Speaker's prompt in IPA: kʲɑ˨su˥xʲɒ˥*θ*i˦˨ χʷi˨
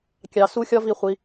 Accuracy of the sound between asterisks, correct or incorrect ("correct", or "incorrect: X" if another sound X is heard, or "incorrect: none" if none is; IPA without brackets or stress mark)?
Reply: incorrect: v